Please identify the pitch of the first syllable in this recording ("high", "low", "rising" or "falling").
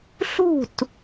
falling